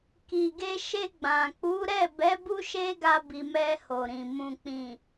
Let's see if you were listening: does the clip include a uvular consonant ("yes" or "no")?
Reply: no